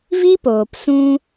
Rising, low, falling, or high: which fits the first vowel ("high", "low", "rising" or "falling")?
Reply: high